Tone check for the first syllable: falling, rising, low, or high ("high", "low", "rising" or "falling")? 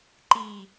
low